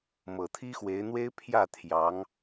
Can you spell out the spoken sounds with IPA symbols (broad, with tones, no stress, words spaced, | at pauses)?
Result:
mɤ˨˩t̪ʰi˥xwe˧˥ɪ̯n̪we˥ɪ̯ pʰjä˥˩ t̪ʰjɑ˧˥ŋ